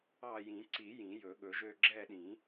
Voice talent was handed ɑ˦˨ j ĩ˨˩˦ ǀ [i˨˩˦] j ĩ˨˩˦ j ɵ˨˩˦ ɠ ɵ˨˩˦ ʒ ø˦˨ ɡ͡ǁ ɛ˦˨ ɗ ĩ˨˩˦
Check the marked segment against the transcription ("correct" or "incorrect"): correct